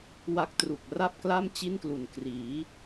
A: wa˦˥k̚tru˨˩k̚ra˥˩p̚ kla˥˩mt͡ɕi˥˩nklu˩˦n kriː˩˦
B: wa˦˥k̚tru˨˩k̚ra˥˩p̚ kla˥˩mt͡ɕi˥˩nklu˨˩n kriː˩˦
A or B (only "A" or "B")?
B